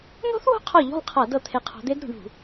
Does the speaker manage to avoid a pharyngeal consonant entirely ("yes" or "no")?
yes